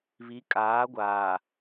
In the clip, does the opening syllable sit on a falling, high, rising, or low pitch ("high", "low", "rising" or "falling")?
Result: rising